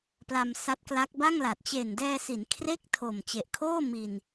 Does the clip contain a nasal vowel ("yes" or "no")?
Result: no